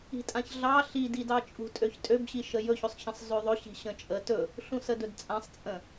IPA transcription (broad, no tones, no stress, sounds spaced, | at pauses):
i̤ tʼ ã ç ɮ ɑ ɬ i d i d ɑ t͡ʃʼ ṳ tʼ ø ç tʼ ø b ɕ i ʃ ə j ɵ ç ɵ sˤ ç ə̃ sˤ z ø ðˤ ɵ ɕ i̤ ɕ ə̃ t͡ʃʼ ə t ɵ | ɬ ũ s ə d ɵ d t͡sʼ ã sˤ t͡sʼ ə̃